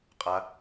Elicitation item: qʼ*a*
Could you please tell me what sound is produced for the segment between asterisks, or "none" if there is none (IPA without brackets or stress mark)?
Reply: a